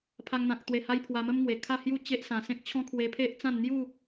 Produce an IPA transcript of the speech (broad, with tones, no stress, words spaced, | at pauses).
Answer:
pʰa˧ŋn̪ã˨k̚t̪we˨˩ ha˦jpʰwa˧ mə˦mŋwe˨˩ kʰa˥˧hju˥˧ t͡ɕe˦ʔsã˨˩sẽ˦k̚ t͡ɕʰɔ̃˦kʰwe˧pʰe˦ʔt͡sã˥˧n n̪ju˥˧